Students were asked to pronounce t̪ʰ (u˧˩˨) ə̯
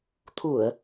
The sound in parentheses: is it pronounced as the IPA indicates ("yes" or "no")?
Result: yes